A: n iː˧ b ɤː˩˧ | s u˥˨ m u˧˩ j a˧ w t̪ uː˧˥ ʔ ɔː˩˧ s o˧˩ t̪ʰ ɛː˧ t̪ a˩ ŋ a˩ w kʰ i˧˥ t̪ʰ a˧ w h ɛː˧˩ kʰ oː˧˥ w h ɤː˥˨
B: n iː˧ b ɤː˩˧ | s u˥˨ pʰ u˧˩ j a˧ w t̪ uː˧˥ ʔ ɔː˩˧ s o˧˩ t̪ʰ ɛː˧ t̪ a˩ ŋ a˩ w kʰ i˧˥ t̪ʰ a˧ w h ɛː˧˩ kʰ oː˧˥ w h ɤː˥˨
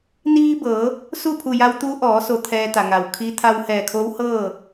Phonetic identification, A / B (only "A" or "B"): B